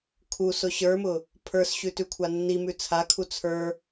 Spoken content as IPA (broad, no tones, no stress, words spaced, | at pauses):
kʰusʊ ɕə˞mʊ | pʰə˞sɕʉtʉkʷʰa nːimʉ t͡sʰakʰu t͡sʰə˞